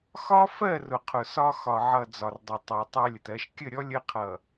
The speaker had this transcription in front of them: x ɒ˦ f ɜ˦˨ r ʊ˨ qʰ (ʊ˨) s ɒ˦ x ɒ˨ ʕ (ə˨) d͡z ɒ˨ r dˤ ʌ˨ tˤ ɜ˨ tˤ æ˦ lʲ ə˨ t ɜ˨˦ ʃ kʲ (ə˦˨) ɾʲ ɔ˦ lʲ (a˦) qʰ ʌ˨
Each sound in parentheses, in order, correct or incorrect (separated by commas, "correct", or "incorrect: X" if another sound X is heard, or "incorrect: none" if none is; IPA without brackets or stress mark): correct, incorrect: ʌ˨, correct, incorrect: ə˦